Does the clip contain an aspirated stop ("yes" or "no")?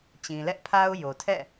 yes